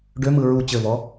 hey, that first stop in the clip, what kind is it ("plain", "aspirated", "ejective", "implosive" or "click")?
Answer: plain